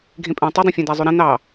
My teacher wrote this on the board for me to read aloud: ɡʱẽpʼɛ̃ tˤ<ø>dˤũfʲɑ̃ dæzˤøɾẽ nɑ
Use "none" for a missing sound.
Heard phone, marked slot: ɵ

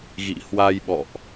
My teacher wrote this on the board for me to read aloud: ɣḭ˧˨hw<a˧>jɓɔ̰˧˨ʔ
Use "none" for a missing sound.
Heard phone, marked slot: a˧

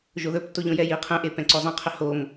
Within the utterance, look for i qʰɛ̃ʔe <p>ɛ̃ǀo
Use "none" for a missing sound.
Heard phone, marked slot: p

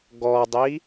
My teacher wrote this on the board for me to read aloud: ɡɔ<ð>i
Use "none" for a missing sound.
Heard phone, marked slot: dˤ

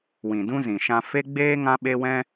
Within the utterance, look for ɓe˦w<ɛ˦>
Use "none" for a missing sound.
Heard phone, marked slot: ɛ̃˦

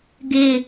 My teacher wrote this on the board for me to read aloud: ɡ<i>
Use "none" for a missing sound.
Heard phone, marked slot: ɪ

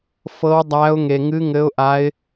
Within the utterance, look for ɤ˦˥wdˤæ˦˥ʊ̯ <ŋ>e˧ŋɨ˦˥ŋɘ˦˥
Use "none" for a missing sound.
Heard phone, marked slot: ŋ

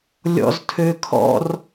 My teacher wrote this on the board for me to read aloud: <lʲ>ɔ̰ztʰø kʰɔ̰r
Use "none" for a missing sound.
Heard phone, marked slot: lʲ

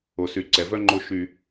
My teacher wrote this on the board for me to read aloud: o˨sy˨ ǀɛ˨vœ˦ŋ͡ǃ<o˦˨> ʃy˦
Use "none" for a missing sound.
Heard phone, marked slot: o˦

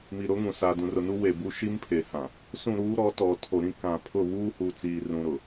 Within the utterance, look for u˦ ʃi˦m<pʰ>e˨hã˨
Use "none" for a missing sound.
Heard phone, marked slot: pʰ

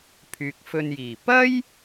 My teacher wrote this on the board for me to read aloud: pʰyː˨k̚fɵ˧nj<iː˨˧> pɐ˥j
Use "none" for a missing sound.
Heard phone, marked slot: iː˨˩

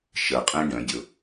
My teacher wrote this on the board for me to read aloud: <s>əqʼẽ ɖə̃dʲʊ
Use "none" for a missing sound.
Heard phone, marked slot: ʃ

